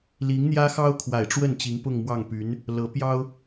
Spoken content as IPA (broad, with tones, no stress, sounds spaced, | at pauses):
l i˧˥ ŋ n̪ j ä˥ x ɑ˥ ʊ̯ kʰ w a˨˩ ɪ̯ ʈ͡ʂ w ə˥˩ n t͡ɕ i˧˥ ŋ p ʊ˥˧ ŋ m w ɑ˥˩ ŋ p y˧˥ n | l ɤ˧˥ p j ɑ˥ ʊ̯